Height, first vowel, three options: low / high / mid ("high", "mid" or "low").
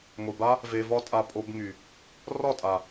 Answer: high